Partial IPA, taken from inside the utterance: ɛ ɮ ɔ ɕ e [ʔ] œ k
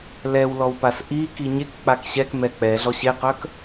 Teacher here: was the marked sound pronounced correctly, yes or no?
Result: no